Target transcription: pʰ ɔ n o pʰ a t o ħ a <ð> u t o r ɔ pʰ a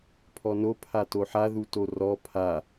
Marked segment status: correct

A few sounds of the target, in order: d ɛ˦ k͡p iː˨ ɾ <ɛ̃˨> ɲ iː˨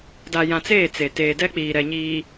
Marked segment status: incorrect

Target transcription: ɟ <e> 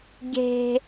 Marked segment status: incorrect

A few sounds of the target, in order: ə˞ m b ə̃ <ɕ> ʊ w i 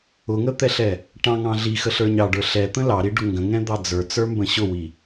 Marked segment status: correct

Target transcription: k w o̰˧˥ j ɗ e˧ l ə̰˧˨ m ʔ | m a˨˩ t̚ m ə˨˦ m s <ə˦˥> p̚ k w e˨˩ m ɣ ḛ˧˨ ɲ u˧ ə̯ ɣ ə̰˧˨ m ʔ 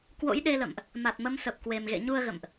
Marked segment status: incorrect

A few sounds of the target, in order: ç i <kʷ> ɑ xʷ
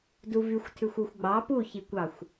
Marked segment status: correct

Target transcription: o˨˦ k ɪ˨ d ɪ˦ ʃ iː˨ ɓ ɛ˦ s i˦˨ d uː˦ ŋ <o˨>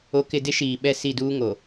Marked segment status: correct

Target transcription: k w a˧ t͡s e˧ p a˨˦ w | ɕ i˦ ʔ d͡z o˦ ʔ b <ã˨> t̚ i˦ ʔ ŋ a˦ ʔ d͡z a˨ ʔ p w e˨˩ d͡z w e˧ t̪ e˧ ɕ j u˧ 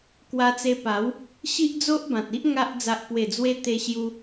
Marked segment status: correct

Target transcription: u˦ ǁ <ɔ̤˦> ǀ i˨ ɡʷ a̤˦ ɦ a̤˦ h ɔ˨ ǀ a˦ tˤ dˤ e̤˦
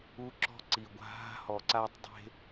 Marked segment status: correct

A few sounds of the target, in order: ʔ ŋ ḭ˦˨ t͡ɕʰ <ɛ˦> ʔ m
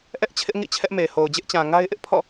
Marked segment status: correct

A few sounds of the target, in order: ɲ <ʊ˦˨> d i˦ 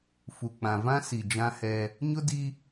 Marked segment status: incorrect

